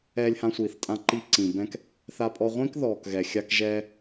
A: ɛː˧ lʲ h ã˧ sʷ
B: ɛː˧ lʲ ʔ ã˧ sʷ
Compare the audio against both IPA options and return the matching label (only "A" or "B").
A